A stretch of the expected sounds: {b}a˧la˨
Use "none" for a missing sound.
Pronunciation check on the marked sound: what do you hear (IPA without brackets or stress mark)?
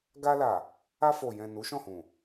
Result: ɡ